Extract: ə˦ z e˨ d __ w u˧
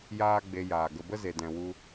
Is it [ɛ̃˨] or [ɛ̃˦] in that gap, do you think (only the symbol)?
ɛ̃˨